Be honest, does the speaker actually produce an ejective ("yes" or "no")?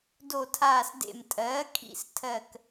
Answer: yes